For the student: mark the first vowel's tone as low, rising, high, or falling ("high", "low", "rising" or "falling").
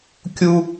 high